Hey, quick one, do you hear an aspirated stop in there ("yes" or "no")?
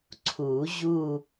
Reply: yes